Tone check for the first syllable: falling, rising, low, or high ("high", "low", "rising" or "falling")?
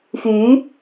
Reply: rising